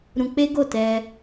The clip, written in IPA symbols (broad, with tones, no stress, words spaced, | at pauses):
ɾũ˧k͡pe˦ ɡo˦˨tɛ˧